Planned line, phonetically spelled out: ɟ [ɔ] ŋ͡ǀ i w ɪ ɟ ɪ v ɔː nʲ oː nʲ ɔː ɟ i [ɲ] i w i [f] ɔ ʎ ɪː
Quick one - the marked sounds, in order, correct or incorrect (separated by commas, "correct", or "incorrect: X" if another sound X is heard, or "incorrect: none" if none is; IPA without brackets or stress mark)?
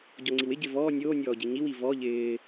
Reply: correct, correct, incorrect: v